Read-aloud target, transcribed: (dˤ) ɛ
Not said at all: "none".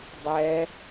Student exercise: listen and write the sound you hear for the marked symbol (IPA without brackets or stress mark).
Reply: dˤ